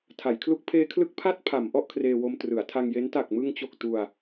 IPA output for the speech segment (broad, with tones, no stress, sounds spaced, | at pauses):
tʰ a˩˦ j kʰ l u˦˥ k̚ pʰ eː˦˥ kʰ l ɯ˦˥ k̚ pʰ a˥˩ t̚ pʰ a˩˦ m ʔ ɔ˥˩ ʔ kʰ r eː˧ w o˧ m t r ɯ˩˦ a̯ tʰ a˧ ŋ j e˦˥ n t a˨˩ k̚ m ɯ˧ ŋ t͡ɕ o˨˩ k̚ t u˧ a̯